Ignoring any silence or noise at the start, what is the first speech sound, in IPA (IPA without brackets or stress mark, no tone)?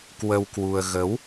k